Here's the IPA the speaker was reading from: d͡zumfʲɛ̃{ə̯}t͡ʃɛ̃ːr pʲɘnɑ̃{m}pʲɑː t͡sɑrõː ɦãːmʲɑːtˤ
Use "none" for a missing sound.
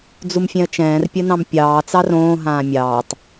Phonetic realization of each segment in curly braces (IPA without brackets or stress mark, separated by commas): ə̯, m